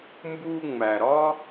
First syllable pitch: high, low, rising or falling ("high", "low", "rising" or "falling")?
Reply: high